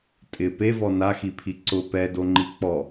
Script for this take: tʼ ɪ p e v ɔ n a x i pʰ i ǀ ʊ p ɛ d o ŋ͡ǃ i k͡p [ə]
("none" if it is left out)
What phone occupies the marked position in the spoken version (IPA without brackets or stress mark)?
ɔ